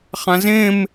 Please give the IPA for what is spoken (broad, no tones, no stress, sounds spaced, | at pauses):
χ ã z ẽ m